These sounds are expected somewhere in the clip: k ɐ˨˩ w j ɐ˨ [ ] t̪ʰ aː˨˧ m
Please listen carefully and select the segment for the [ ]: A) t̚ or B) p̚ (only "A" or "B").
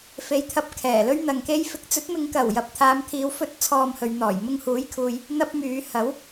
B